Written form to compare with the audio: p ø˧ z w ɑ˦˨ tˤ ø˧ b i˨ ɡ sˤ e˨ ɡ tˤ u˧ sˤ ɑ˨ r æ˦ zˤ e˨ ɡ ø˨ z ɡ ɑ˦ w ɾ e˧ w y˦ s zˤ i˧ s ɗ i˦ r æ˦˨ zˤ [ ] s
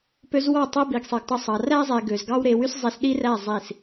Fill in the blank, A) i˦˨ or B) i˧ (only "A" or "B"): A